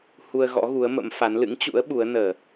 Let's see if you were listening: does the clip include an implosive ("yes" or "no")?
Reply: yes